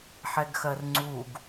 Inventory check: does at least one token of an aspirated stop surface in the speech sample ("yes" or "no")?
no